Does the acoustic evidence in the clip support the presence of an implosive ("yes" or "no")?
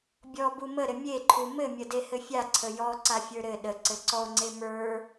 yes